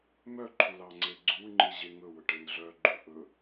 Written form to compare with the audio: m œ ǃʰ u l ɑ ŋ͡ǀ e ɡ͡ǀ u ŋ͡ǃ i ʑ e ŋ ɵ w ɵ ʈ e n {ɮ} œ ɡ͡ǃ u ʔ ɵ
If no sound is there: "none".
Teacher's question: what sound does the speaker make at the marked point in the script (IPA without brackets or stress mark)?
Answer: ɮ